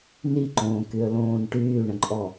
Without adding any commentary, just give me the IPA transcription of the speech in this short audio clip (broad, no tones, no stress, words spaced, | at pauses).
niǃõːkyə̯lõːn ʈyːɳə̃ǃʼɔ